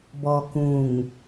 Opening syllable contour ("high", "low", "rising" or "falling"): low